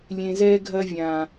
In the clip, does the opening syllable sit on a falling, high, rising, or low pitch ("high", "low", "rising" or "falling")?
low